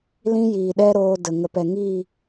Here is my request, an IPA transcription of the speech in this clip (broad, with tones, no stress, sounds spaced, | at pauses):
l ĩ˧ j iː˨ ɗ ɛ˦ ɾ oː˧ d ə˨ ŋ ə˨ p ɛ˨ ŋ iː˦˨